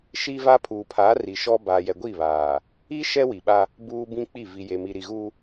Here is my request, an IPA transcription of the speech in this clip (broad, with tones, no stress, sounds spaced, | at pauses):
ʃ i˦ v a˦ pʰ uː˨ pʰ aː˨˦ r i˨ ʃ ɔ˦ b aː˨ j ɛ˨ ɡʷ i˦˨ β aː˨ | i˦ ʃ ɛ˦ w i˨ ɓ a˦ | b uː˦ b ĩ˦ k͡p i˦˨ v i˨ j e˨ m i˨ ɾ i˨ ɣ u˦